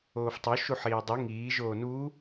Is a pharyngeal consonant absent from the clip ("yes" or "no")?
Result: no